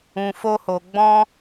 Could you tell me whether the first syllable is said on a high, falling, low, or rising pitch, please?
low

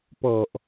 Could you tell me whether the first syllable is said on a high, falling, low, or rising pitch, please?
low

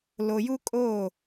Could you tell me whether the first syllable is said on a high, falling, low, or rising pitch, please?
low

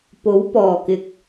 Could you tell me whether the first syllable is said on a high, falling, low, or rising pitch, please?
rising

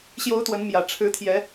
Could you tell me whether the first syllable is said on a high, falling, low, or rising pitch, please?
rising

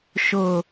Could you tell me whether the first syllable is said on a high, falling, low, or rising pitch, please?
low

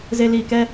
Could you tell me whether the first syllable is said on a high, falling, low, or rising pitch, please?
low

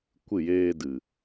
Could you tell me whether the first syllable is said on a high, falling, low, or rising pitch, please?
falling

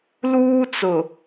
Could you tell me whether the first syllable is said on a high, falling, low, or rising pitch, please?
high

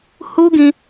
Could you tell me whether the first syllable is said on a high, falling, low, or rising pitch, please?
high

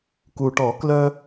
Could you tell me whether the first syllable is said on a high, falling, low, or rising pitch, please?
low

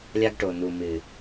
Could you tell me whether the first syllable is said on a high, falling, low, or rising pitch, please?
high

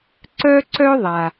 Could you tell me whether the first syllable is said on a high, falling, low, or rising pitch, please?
high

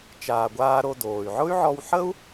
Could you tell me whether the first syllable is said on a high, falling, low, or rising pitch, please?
low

